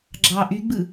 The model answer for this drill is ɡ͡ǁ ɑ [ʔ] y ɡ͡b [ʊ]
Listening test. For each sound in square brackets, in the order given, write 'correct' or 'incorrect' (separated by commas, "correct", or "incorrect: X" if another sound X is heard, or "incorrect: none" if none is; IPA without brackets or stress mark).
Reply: correct, incorrect: ɯ